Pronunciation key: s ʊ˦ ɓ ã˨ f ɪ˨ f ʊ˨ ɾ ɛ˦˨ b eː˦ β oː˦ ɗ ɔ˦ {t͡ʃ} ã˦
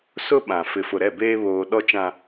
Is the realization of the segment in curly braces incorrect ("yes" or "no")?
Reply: no